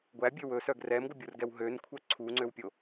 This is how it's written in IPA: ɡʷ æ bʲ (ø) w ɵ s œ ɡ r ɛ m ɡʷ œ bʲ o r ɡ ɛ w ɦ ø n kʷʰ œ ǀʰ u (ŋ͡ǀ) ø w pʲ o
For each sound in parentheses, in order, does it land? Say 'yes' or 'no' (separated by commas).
yes, yes